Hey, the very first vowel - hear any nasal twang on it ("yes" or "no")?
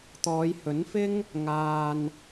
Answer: no